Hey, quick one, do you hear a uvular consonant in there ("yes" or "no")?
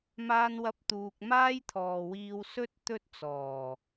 no